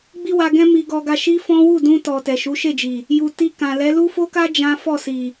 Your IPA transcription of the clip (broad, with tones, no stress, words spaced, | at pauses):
ɡ͡bi˦wa˧ɡɛ̃˦ mi˧ɡɔ˧ɡa˧ ʃi˦fɔ̃˦ wu˦˨dũ˧tɔ˨ tɛ˨ʃu˨˦ ʃe˦˨d͡ʒi˨ | ju˨ ti˧ kã˨lɛ˨˦ lu˦fo˦ka˦ d͡ʒã˦ fɔ˦˨si˨